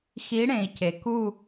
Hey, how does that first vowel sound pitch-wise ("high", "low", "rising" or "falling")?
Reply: rising